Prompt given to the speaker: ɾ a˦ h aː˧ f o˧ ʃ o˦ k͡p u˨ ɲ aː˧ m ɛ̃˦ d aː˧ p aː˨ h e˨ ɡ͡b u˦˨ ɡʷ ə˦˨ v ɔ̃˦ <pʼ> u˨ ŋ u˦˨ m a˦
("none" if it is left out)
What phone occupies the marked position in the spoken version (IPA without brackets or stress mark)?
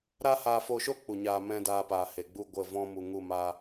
m